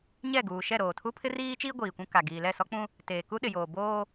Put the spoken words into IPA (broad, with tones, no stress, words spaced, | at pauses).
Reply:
ɲɛ˦˨ɡuː˨ ʃɛ˦˨ɾoː˨tʰu˦ pʰɪ˦riː˦t͡ʃiː˦ ɡʷiː˨kʷũ˦ ka˨ ɡiː˨lɛ˦˨sɔ˦k͡pũ˦ | teː˨ku˦ɗɪ˨joː˨ boː˦